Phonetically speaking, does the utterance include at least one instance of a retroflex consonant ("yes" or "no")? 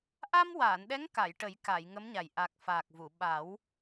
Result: yes